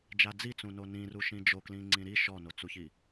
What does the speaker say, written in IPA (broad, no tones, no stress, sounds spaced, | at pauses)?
d͡ʒ a d͡z i t͡s ũ n o n ĩ r u ʃ ĩ d͡ʒ o k l ĩ ŋ͡ǀ ĩ ɾ i ʃ ɔ n o t͡s u ç i